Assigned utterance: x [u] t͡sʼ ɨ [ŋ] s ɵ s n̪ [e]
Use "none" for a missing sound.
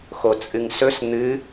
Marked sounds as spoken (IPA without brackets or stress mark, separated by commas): o, ŋ, ɨ